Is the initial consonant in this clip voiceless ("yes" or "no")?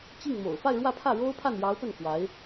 yes